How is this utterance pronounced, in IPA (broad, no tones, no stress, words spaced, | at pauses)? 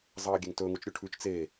zˤɐːɡʲeŋtɵ ŋut͡ʃɾʲuʈʰʉt͡ʃ t͡se